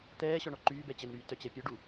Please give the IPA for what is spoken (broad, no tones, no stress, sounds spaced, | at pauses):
t̪ ɛː ɕ ɔ ɳ ɔ ǃ yː b ɛ t͡ɕ ə n ɾ yː t œ t͡ɕ ɛ pʲ œ ɖ u